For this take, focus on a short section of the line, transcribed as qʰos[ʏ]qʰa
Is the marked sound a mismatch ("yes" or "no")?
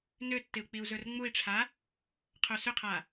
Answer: no